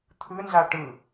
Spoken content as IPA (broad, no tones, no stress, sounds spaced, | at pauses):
t̪ʰ ɯ n z a ʈ ɯ